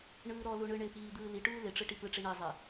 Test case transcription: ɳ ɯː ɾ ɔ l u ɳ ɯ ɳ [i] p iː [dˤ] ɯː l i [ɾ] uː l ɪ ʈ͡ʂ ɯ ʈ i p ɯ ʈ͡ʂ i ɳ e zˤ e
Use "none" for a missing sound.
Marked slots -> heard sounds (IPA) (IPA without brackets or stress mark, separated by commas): ɪ, d̪, ʈ